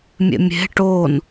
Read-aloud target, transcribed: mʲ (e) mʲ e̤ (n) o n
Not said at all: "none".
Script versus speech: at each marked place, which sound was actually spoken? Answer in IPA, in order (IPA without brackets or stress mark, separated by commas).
ḛ, ʈ